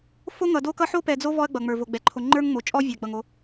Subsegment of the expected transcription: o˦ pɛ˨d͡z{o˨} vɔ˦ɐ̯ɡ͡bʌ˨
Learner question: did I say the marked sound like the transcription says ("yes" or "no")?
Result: no